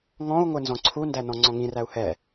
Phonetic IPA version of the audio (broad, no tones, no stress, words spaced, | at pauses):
ŋɔ̃u̯ŋʷɘ nzɔ̃ǀʰundænɔ̃ ŋ͡ǀɔ̃ŋĩræu̯ hɛ